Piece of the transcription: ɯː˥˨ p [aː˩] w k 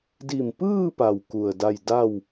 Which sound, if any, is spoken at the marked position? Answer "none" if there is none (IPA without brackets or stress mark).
a˩